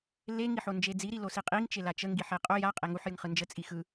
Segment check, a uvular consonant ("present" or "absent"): present